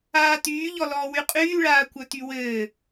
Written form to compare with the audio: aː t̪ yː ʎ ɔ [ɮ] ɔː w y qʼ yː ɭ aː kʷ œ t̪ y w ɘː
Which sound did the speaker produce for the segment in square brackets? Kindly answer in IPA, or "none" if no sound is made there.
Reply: l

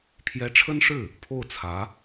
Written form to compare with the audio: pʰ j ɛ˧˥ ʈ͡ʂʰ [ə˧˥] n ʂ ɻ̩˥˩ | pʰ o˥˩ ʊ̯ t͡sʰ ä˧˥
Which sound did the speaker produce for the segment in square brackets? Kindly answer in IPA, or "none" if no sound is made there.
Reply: ə˥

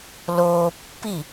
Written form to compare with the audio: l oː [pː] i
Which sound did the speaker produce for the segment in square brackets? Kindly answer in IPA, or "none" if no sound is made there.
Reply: pː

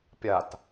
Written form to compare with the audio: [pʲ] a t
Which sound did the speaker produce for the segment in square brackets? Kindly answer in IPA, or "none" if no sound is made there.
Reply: pʲ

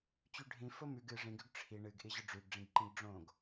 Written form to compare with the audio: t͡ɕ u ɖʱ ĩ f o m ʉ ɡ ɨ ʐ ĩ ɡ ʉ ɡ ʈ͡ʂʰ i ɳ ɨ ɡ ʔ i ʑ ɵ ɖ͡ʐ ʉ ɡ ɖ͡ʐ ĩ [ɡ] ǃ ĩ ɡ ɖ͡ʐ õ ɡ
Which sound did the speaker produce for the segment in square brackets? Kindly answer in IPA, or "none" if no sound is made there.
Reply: ɡ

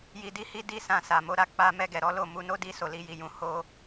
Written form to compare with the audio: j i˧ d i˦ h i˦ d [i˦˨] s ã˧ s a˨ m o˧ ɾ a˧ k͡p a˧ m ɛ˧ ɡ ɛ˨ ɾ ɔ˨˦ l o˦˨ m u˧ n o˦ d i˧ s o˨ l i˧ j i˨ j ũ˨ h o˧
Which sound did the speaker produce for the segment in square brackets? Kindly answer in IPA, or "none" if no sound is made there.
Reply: i˦˨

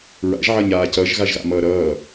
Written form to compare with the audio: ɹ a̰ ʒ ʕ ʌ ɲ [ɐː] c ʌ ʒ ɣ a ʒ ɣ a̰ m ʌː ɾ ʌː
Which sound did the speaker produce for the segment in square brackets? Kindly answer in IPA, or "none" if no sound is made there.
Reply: aː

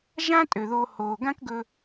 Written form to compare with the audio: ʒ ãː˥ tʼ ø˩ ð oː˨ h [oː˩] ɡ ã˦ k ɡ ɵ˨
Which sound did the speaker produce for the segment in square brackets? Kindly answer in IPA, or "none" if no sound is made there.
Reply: oː˩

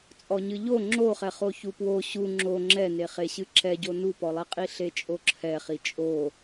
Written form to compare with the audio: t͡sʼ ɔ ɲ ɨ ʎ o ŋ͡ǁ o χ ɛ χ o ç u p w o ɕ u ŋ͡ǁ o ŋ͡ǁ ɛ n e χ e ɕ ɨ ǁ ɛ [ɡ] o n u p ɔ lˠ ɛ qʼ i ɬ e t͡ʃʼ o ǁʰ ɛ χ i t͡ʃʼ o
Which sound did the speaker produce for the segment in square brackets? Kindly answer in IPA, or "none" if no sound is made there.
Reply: ɟ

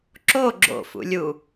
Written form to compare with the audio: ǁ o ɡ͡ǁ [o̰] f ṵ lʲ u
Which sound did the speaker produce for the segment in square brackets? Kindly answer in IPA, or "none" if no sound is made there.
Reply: o̰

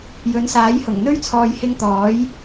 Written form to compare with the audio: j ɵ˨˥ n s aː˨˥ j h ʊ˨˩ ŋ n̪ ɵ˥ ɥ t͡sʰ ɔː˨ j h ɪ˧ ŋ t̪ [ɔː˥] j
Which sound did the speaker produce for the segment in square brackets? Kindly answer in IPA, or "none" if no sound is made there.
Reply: ɔː˨˥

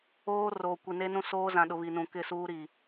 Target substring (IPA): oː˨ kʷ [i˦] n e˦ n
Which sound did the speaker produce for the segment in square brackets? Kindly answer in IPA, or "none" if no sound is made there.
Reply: i˨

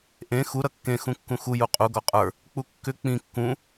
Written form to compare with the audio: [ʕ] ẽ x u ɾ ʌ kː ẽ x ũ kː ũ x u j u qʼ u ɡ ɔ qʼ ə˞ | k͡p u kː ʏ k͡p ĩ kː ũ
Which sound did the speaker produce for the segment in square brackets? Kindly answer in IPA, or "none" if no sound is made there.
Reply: ʔ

